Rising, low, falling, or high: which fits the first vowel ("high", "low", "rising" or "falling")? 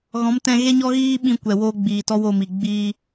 rising